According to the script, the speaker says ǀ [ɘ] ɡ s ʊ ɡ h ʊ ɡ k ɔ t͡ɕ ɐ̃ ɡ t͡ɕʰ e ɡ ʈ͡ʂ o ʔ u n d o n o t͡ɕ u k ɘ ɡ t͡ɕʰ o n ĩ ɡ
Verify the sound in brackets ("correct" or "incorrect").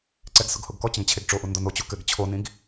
incorrect